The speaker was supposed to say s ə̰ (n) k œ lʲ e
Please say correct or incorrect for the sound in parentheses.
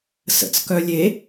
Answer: incorrect